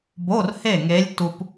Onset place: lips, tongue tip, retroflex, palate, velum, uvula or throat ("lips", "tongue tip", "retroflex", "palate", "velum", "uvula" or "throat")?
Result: lips